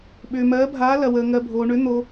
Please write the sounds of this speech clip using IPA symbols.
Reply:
ɓ ʏː˧ m ɜː˧˥ bʱ aː˧˥ l ɐ˧ w əː˧ ŋ ɜ˧ bʱ oː˧ ɳ ʏ˧˥ n̪ o˧

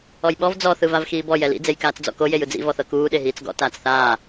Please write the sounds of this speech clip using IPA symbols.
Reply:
ɔ j ɓ ɔ v d͡z ɔ θ ɯ v a v x iː b ɔ j ɛ l ḭ d͡z e j k aː t͡s d͡z ɔ̰ k o j e j ɯ d͡z ḭ v ɔ θ ɤ k uː ɗ e ɦ iː t͡s ɡ ɔ̰ t aː t͡s θ aː

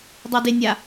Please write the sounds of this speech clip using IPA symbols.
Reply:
dˤ ɛ d e nʲ a

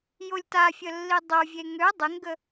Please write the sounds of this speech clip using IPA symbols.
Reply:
j o lʲ t a fʲ ə lː i dˤ o vʲ e ŋ ø dˤ e ŋ ɡ ə

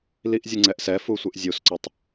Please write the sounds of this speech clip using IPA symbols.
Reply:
l i ʔ zʲ ɨ ŋ͡ǀ ɛ ʔ s ɛ f u sʷ ɨ ʔ zʲ u s ǀ ɔ tˤ

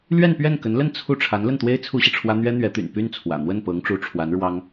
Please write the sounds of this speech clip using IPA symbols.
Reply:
l ɥ ɛ˥˧ n p ɥ ɛ˥˩ n k ə˧˥ n l ə˥˧ n t͡sʰ u˥˩ ʈ͡ʂʰ a˧˥ n l ə˥˩ n t̪ w e˥ ɪ̯ t͡sʰ u˥ ɕ i˨ ʈ͡ʂʰ w ä˥ n̪ ɥ ɛ˥ n̪ ɥ ɛ˧˥ t̪ y̰˨˩ n p y˥˩ n t͡sʰ w ä̰˨˩ n̪ w ə˥˩ n p ɤ˧˥ ŋ ʈ͡ʂ u˧˥ ʈ͡ʂʰ w a˧˥ n ɻ w ɑ˥ ŋ

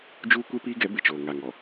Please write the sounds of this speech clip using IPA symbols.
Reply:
d͡ʒ uː˦ kʷ e˦ p iː˦ ɡ ɛ˨˦ b ɪ˨ t͡ʃ oː˨ ŋ a˨ ŋ ɔ˨

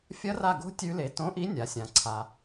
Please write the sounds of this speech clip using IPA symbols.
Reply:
fʲ ɐ˦˥ r a˦˨ ɡ o̤˦˥ tʲ ʉ˦˥ l e˨˥ t õ˨˥ ʔ i˨˥ nʲ a˩˧ sʲ ã˩˧ ǀʰ a˨˩

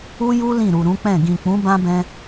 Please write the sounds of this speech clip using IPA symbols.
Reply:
u˦ j u˦ l ĩ˦˨ ɾ u˨ ɾ ũ˨˦ k͡p ɛ̃˦˨ ɡ ĩ˨ k͡p ũ˨˦ b ã˦ b ɛ̃˧

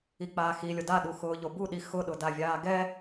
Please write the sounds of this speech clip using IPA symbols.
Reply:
i k͡p aː x i lʲ o d a ɗ u x ʊː ʎ o b u ɗ i x ʊ ɗ ʊ d a vʲ aː ɡ ɛ

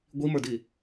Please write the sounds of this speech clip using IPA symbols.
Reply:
ɡʷ i m ə˞ d i

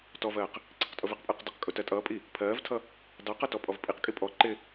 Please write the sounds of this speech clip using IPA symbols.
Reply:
t ɔ v ɜː q | ǀ i q tʼ ʊ v ɪ q pʼ əː q d ə q kʼ ʊ t ɜ tʼ ʌː pʼ i | pʰ ɜː v tʰ ʌ | d ɑ q ʌ t ɔ pʼ ɔ v pʼ i q kʼ i pʼ ɔ ǃ ɪ

